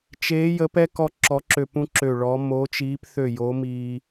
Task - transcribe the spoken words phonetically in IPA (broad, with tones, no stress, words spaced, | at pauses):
t͡ʃeː˧˥ jə˧˥pɛ˥ kɔ˥ǁɔ˧˥ǁø˦˨ pũ˥ǁø˦˨ɭɔ˧˥ mo˧˥t͡ʃiː˧˥pθø˦˨jo˧˥ miː˥